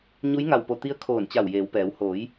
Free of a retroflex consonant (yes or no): yes